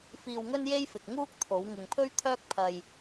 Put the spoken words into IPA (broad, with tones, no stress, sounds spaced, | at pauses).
f iː˧ w ŋ ɵ˥ n j e˥ j f ɪ˨ k̚ ŋ uː˥ k̚ t̪ʰ o˨˧ w ŋ ɪ˨ ŋ pʰ ɵ˥ ɥ t̪ʰ œː˥ k̚ pʰ ɐ˧ j